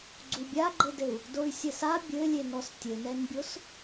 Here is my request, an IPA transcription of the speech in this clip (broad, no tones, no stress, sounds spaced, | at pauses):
ɡ͡ǀ u bʲ a ɡ͡ǃ ɘ d ɘ u̯ | d o y̯ sʲ ɛ s a bʲ ɘ lʲ e n ɔ s tʲ ɘ n ɛ n bʲ o s